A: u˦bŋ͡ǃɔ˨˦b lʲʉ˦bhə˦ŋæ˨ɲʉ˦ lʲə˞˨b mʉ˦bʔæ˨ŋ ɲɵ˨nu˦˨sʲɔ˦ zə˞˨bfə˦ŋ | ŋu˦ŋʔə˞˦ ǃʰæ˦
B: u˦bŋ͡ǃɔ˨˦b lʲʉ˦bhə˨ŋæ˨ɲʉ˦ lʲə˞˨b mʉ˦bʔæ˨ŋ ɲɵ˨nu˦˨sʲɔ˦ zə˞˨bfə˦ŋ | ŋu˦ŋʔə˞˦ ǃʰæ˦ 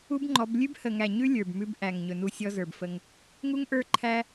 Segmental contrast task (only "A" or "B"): B